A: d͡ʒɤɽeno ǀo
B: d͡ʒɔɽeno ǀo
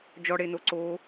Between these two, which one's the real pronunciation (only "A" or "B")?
B